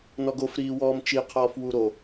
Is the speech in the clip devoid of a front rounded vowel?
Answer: yes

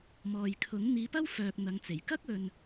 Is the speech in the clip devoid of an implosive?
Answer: yes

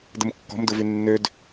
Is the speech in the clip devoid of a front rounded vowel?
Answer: no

